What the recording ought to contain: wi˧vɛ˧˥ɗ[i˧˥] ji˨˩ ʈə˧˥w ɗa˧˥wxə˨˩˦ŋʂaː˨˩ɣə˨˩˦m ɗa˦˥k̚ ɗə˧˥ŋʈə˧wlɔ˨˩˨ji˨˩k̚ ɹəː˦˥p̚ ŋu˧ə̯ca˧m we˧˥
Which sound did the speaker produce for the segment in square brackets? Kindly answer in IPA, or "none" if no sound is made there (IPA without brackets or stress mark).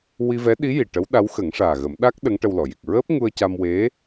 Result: i˧˥